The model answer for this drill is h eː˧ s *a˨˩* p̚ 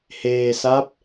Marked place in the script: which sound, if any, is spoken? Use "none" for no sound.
a˦˥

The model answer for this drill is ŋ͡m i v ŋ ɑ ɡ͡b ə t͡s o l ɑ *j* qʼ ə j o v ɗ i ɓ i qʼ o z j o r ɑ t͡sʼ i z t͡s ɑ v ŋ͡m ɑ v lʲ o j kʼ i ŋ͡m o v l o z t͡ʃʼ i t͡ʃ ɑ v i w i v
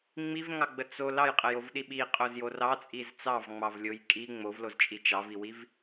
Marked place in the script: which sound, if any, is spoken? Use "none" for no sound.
j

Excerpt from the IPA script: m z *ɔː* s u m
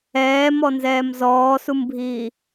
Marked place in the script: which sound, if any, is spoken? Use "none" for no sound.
ɔː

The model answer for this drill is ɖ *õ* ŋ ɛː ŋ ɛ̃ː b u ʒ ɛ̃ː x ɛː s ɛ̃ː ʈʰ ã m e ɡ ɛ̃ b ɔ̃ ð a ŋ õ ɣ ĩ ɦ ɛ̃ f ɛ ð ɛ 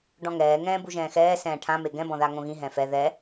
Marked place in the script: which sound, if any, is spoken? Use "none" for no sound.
ɔ̃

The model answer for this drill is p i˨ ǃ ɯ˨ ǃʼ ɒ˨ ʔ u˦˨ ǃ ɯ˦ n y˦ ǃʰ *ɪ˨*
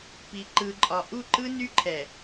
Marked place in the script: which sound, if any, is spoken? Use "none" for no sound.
ɛ˨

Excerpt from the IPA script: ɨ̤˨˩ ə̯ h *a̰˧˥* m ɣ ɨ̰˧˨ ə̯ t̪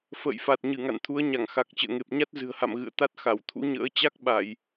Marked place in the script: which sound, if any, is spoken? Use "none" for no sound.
a̰˧˨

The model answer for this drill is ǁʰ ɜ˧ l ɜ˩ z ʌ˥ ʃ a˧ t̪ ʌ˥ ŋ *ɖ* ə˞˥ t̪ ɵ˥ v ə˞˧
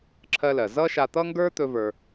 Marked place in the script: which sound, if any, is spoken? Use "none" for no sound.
ɡ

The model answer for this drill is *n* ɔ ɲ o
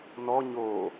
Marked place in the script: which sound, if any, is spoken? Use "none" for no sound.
n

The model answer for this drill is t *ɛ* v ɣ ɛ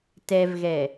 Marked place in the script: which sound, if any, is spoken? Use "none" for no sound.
ɛ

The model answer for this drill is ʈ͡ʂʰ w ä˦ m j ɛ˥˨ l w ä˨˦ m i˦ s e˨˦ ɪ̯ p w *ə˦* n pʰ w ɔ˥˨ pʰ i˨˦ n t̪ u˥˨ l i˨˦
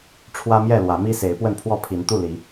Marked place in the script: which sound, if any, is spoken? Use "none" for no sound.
ə˥˨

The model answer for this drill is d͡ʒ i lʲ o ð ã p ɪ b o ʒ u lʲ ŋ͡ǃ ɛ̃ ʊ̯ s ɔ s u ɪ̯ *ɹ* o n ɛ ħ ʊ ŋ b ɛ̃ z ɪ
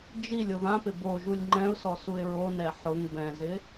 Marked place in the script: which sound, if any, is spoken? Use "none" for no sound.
ɹ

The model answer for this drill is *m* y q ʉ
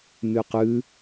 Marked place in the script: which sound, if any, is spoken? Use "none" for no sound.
m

